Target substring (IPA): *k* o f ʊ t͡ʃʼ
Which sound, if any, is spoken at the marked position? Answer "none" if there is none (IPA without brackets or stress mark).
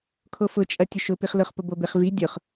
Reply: kʰ